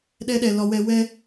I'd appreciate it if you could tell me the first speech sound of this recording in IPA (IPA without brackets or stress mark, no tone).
ɗ